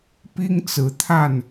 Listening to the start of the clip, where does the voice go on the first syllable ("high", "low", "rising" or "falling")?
high